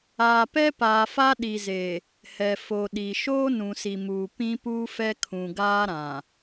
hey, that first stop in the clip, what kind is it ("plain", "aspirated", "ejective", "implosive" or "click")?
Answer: plain